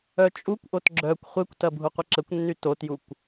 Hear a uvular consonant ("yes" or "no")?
yes